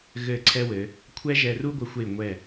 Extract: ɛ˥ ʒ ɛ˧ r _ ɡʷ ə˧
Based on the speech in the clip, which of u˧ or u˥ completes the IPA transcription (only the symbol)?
u˥